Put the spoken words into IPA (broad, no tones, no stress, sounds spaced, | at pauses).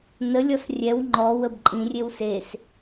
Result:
n ə lʲ ɔ s rʲ ɛ w ŋ͡ǃ ɔ w ə b ǃʼ ĩ rʲ e w s e s